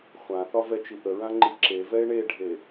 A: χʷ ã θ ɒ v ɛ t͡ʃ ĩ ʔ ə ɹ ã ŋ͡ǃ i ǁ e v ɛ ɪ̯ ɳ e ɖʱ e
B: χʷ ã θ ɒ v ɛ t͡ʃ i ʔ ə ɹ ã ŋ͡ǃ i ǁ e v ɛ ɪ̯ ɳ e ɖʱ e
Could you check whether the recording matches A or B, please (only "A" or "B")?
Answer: B